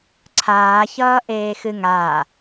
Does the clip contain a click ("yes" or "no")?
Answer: yes